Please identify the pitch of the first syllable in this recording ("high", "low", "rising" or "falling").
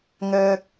low